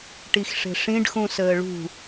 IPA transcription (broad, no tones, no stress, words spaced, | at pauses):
ʈixʂe̤ʂĩɖxũ səːɭṳ